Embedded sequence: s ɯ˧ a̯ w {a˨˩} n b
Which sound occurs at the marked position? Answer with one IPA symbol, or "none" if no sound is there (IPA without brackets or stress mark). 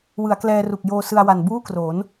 a˨˩